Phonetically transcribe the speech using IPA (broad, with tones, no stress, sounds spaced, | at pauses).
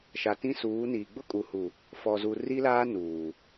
ʃ a˨ t ĩ˦ s uː˨˦ n iː˨ ɡ͡b ʊ˦ kʼ u˨ h u˨ | f ɔ˨ z u˨ r i˦ l aː˦ n uː˨